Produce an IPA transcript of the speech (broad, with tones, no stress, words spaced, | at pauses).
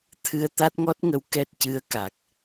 t̪ʰɨ˧ə̯t̪a˦˥t̚ŋɔ˦˥t̚ŋə˧˥w kɛ˦˥t̚cɨ˧˥ə̯ka˨˩k̚